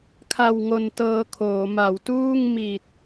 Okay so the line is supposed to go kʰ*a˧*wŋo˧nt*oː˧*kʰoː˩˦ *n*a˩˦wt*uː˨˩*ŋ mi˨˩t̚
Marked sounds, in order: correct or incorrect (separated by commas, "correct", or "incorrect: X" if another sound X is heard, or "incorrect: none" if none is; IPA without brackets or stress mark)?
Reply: correct, incorrect: ɤː˧, incorrect: m, incorrect: uː˥˩